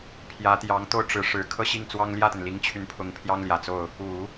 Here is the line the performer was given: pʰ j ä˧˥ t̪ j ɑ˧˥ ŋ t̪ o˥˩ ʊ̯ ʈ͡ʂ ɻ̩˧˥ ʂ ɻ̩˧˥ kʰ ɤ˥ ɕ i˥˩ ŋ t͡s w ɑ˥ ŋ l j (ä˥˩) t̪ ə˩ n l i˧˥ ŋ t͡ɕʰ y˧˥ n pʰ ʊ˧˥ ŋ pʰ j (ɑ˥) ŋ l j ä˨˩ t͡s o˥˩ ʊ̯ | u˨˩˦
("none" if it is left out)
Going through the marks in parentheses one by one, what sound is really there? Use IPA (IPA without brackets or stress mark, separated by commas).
ä˥˩, ɑ˥